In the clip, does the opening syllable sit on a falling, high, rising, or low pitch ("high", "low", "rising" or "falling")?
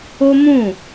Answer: high